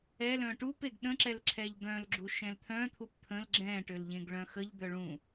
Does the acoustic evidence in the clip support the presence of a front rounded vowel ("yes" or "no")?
yes